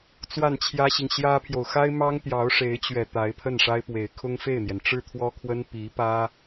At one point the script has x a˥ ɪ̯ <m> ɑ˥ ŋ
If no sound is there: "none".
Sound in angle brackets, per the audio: m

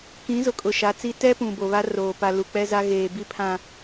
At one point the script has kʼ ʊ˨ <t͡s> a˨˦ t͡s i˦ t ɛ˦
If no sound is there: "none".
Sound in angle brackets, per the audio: ʃ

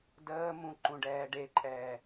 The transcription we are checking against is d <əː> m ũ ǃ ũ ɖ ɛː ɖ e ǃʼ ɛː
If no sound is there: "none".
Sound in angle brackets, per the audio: əː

